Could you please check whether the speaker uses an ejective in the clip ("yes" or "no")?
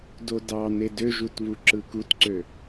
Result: no